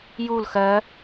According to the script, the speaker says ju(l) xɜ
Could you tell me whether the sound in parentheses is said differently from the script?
no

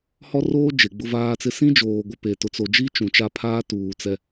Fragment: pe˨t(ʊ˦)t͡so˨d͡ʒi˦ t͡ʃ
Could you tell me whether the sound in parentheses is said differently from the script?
yes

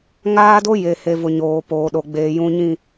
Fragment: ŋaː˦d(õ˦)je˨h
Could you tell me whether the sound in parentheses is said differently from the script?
yes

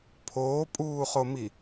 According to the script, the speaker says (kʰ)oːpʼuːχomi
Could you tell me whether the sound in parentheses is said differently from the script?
yes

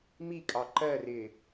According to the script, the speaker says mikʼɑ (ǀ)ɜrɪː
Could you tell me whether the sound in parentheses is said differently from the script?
yes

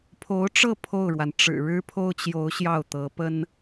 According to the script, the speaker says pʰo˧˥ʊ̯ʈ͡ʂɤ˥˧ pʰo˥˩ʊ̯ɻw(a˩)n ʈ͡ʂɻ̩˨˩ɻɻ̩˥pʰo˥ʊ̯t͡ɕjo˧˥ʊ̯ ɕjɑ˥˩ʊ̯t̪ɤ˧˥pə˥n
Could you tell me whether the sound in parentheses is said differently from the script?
no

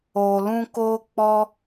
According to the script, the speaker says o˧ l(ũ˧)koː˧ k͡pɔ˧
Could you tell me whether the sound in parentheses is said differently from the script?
no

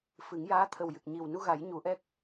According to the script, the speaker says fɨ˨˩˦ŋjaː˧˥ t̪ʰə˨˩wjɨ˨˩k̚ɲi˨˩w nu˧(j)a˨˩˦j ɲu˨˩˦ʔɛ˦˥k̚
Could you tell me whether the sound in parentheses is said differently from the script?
yes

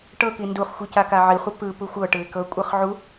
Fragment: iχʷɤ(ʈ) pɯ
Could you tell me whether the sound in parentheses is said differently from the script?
yes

